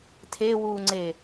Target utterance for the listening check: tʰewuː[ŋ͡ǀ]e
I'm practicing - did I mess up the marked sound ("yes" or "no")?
no